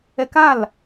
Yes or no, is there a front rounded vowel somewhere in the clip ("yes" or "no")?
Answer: no